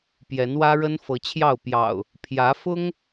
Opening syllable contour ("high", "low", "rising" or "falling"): rising